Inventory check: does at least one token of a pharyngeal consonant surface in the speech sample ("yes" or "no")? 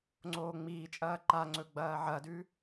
yes